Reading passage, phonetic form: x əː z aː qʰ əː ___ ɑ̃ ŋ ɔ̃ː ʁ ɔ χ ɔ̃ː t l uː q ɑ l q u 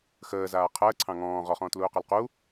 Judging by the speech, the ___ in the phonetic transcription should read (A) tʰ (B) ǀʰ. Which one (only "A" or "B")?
B